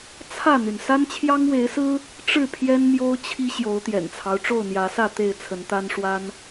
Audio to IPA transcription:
t͡sʰ ä˥˨ n̪ y˩ n s a˦ n t͡ɕʰ j ɑ˦ ŋ w e˨˦ ɪ̯ s ɹ̩˦ | ʈ͡ʂ ɻ̩˥˨ pʰ j ɛ˦ n m j o˦ ʊ̯ t͡ɕʰ i˦ ɕ j o˨˦ ʊ̯ t̪ j ɛ̰˨˩ n t͡sʰ ɑ˦ ʊ̯ ʈ͡ʂ o˥˨ ʊ̯ n̪ j ä˨˦ s ä˥˨ t̪ e˥˨ ɪ̯ t͡sʰ ə˨˦ n t̪ a˦ n ʂ w a˦ n

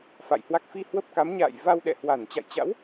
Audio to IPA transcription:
f a̰˧˨ j h w a˦˥ k̚ f i˧ h w ə˦˥ p̚ k a˨˦ m ɲ a̰ː˧˨ j v a˧ w ɗ ɛ̰˧˨ h w a˧˩ n t͡ɕ a̰˧˨ j t͡ɕ a̰˧˥ w

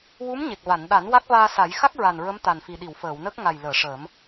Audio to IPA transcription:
w u˧˥ m ɲ e˨˩ k̚ v a˨˩˨ n ɗ a˨˩˦ n w a˦˥ k̚ v aː˧ s a˨˩˦ j x a˦˥ k̚ ɹ a˨˩ n ɹ ə˧˥ m t̪ a˨˩ n f i˨˩ ɗ i˨˩˨ w f əː˨˩˨ w n ə˦˥ k̚ ŋ a˨˩ j l əː˨˩˨ ʂ əː˨˩˦ m

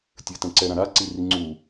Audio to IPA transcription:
tʲ ɘ t ɛ̃ ǀ ɛ ɾ ã ɾ a ǀ i r i ŋ͡ǀ u

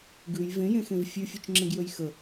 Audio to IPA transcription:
ɡ ʉ j v ẽ j ẽ x ẽ v fʲ ʉ fʲ ø t͡ʃ ŋ͡ǁ ẽ ɡ j ø j x ə

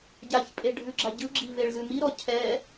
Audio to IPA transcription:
ɟ a ç pʼ e ɖʱ ʉ ɡ͡ǁ a ɟ ɯ ɡ͡ǁ i v e ɭ z ʉ m i ɾ ɔ cʰ ɛ

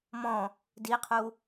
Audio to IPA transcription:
m ɔ̃ | d i qʰ u

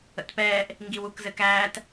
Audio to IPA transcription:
ə̰ t p ɛː ʔ | ŋ ɡ i w u k z ɘ k æː t

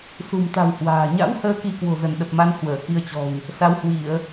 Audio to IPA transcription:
s ṳ˨˩ m t̪ a̤˨˩ w h w a̤ː˨˩ ɲ a̰˧˥ w h əː˨˦ k i˧ k w o̤˨˩ z ə˧˩ n ɗ ə˨˩ p̚ m a˨˦ n h w əː˧˩ k i˧ ə̯ t͡ɕ ɔ̤˨˩ w | s a˨˦ w h w i˧˩˨ ə̯

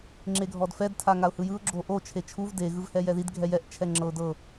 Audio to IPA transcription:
ŋ͡ǁ e ɡʱ ɔ d f ɛ d tʰ a ŋ a ʊ̯ h ɯ j ɯ ʊ̯ ɡ͡ǁ o ʔ o t͡ʃʰ e t͡ʃʰ u v d e ɣ ɯ v h ɛ j ɛ ð i d ɡʱ ɛ j ɛ ʔ t͡ʃʰ ɛ ŋ͡ǁ ɤ ʊ̯ d ɤ

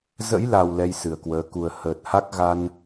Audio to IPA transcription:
z ə̰˧˥ j l a˨˩ w l ɛ˧ j s ɨ˨˩ ə̯ k w əː˨˦ k u˨˩ ə̯ h əː˨˩ t̚ h a˦˥ k̚ ɣ a˧ n

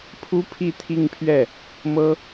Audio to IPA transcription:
pʰ u˥ pʰ i˥˧ t̪ʰ i˥˧ ŋ pʰ ɥ ɛ˥˩ | m ɤ˥

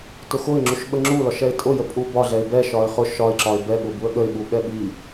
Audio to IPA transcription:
t ʊ x ʊ ɪ̯ ŋ͡ǁ u ʃ ɓ ə ŋ͡ǁ u l ɒ ʃ ɛ ɪ̯ tʼ ʊ j ə pʼ u b ɒ ɮ ɛ ɪ̯ b ɛ ʃ ɒ ɪ̯ χ ʊ ʃ ɒ ɪ̯ ǁ ɒ ɪ̯ b ɛ ɠ ʊ b u ə̯ ɠ ə ɪ̯ ɓ u ɓ ɛ ɓ i

